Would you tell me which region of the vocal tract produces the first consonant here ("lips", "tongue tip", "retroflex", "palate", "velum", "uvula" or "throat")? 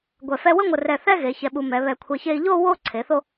velum